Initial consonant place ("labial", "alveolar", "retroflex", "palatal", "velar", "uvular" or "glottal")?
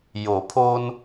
palatal